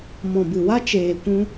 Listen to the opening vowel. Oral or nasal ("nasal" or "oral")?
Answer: nasal